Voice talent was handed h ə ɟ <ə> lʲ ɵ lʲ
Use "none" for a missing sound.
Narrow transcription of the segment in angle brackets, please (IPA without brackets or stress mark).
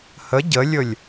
ə